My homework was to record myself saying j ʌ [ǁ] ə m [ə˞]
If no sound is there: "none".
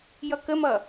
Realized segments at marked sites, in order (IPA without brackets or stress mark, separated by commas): k, ʌ